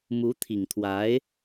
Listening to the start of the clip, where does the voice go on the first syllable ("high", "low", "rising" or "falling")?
rising